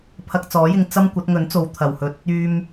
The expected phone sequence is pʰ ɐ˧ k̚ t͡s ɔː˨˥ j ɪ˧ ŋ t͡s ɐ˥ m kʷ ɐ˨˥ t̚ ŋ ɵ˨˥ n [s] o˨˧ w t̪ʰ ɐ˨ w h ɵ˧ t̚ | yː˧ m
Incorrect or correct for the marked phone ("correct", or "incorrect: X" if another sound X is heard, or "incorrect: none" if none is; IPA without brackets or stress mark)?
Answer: incorrect: t͡s